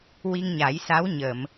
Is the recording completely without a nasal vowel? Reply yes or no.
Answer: yes